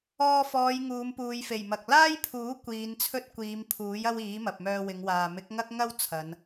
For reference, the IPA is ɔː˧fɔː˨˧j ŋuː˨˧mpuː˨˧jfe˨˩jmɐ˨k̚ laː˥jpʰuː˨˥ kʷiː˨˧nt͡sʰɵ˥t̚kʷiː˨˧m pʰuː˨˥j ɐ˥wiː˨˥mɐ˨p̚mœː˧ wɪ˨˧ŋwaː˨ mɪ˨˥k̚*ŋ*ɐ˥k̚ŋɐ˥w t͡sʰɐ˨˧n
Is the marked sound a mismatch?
no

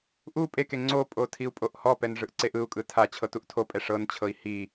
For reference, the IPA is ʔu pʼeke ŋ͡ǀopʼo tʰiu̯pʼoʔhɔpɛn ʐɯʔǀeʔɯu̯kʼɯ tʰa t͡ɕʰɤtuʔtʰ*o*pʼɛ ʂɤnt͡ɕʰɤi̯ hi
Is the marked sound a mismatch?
no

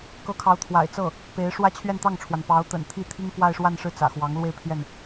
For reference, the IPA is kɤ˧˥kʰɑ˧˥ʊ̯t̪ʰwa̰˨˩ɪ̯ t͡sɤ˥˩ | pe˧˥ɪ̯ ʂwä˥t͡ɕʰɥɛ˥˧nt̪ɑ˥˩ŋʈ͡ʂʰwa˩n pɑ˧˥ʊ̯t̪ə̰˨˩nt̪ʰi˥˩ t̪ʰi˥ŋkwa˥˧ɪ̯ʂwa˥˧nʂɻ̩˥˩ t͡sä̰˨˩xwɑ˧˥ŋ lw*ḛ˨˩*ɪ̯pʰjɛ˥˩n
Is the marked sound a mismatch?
yes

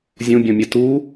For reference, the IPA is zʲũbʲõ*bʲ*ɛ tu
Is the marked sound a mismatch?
yes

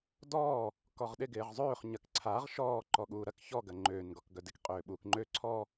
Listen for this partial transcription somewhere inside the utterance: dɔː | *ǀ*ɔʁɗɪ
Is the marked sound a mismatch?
yes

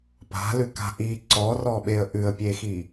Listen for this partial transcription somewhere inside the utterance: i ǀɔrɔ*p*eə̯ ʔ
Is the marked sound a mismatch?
yes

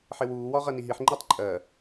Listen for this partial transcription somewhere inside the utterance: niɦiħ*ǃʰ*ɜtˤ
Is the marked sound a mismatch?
yes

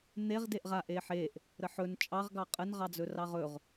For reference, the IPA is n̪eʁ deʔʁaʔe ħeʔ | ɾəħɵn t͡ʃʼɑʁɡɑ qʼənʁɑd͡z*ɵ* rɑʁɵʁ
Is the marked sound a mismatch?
no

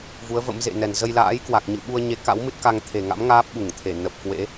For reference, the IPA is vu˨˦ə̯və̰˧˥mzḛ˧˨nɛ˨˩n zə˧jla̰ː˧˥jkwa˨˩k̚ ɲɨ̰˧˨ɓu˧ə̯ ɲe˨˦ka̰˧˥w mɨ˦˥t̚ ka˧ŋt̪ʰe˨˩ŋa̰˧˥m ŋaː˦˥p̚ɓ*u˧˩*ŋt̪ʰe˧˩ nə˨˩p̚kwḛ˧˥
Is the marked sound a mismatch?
no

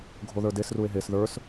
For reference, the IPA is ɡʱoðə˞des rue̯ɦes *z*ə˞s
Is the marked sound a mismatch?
yes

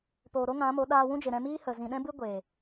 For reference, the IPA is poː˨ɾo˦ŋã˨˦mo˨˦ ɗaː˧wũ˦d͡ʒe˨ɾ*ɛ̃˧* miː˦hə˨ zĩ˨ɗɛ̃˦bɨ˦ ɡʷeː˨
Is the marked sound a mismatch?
no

